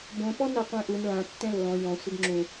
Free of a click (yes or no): no